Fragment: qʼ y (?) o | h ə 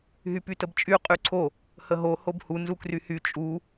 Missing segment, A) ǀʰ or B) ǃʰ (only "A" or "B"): A